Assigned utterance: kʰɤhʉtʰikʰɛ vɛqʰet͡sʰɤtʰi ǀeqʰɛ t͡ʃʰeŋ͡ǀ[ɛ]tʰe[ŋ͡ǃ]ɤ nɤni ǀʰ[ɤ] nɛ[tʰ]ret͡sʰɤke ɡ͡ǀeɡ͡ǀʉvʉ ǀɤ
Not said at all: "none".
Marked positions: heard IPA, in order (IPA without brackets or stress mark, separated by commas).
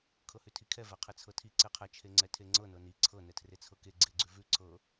ɛ, ŋ͡ǀ, ɤ, tʰ